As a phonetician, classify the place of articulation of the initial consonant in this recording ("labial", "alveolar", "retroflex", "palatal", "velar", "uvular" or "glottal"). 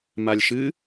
labial